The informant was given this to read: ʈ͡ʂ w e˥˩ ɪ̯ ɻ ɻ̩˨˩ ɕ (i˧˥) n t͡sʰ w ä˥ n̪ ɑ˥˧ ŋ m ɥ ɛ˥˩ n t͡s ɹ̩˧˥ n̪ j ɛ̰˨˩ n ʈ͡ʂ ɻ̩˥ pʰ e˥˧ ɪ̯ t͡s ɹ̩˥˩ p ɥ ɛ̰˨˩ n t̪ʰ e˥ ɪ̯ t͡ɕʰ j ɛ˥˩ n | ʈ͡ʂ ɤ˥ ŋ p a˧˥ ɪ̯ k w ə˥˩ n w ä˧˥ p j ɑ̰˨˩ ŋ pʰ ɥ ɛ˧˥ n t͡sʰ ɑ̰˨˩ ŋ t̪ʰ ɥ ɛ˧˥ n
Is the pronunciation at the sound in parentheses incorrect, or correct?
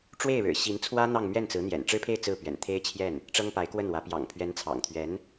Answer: correct